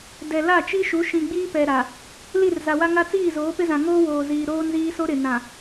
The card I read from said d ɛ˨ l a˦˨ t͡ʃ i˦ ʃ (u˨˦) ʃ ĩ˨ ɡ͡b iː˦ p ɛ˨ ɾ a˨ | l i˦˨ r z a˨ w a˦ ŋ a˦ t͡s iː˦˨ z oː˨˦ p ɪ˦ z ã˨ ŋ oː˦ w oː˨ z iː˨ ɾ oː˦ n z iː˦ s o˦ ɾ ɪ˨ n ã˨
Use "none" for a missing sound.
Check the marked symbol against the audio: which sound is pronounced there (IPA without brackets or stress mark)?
u˨˦